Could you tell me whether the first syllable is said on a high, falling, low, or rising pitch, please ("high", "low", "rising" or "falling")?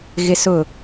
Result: high